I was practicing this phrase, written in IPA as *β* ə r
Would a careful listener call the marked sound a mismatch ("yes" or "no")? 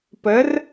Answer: yes